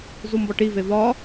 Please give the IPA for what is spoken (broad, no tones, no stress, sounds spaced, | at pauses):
z u m b ɒ ʈ i v e v ɒ